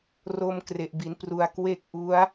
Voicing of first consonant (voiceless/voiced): voiced